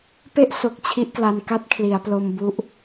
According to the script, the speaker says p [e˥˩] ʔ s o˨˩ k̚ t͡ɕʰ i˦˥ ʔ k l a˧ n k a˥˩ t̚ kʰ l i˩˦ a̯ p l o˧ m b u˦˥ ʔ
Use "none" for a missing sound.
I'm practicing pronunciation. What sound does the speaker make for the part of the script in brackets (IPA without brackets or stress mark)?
e˥˩